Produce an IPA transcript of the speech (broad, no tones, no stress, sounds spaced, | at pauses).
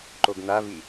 ǃ o ɡ n̪ a v i